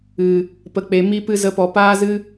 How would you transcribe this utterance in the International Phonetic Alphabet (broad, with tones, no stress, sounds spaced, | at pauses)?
ɨ˨ | p ə˧ k͡p e˧ m i˦ p ɨ˦ z ə˦ p ɔ˧ p aː˦ z ɨ˦